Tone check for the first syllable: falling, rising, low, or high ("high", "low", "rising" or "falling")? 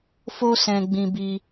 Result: high